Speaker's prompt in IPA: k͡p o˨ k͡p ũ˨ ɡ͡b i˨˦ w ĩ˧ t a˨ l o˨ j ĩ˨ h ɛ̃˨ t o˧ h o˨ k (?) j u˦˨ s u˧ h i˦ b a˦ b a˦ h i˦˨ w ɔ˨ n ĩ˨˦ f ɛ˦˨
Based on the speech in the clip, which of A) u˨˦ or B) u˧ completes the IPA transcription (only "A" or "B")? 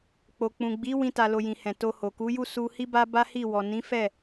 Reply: A